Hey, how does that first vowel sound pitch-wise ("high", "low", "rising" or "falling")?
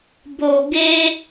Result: low